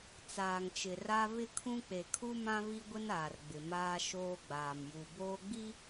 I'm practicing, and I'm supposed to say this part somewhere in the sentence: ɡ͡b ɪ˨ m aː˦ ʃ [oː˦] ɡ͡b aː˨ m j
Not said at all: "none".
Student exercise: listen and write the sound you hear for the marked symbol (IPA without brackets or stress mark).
oː˦